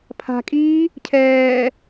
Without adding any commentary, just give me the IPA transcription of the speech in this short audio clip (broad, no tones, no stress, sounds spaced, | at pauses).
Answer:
pʰ a̤ kʼ iː | cʰ ɛː